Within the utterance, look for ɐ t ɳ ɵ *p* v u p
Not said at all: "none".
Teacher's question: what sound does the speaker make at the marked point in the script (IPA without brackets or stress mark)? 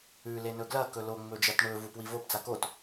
none